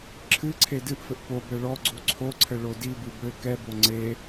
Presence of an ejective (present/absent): absent